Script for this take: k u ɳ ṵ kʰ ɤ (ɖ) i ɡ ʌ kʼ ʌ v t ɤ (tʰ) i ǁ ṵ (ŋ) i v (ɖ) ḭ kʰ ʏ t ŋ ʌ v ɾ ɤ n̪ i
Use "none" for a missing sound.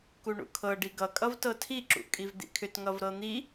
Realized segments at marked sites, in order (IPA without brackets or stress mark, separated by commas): ɖ, tʰ, kʼ, d̪